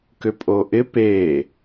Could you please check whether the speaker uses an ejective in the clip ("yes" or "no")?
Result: yes